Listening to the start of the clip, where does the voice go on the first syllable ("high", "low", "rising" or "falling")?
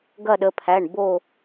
falling